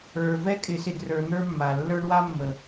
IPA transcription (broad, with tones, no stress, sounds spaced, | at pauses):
ə˞˨ v ɛ˦ kʼ ɪ˨˦ s ɪ˨ d r ə˞˨ n̪ ə˞˦ mː a˨ lː ə˞˦ ɳ w a˦ mː ə˨